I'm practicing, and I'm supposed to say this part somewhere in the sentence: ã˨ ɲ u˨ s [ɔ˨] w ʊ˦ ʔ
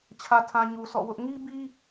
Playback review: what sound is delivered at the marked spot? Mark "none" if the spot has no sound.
ɔ̰˦˨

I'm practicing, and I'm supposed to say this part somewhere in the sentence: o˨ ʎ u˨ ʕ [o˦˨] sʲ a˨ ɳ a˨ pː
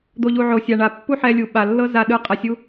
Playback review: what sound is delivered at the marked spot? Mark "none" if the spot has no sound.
o˨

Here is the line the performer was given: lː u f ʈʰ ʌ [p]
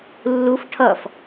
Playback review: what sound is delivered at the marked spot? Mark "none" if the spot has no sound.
f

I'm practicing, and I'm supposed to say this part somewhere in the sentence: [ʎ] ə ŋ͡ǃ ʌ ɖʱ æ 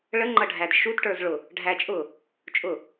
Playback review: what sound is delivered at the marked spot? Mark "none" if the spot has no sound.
ɭ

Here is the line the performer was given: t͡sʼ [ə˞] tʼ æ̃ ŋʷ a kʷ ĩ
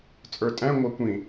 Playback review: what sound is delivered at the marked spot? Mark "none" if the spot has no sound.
ə˞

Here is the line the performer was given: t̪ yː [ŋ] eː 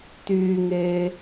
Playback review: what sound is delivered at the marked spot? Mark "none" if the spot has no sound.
ŋ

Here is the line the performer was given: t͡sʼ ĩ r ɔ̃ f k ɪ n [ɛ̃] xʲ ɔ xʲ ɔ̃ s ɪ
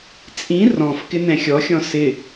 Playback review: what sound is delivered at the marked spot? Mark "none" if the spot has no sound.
ɛ̃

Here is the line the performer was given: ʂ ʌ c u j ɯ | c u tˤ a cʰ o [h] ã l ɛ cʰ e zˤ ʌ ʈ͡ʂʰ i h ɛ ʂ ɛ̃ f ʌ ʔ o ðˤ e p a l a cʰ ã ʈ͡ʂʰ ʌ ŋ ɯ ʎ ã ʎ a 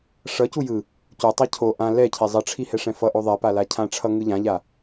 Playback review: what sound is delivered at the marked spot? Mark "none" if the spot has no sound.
ʔ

